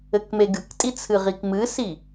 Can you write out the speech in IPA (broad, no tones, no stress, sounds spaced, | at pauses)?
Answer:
ɘ k m e ɡ ɨ k tʼ i t͡sʰ ɨ ʁ i k m ɨ s i